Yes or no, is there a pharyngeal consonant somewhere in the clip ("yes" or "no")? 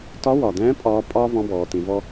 no